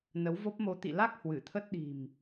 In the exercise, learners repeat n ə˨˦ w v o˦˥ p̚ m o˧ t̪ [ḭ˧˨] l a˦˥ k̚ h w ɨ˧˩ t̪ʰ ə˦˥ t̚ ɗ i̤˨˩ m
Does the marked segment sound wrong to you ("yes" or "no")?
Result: no